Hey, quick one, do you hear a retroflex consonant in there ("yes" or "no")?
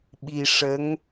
yes